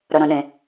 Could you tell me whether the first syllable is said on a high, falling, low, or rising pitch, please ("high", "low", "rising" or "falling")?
low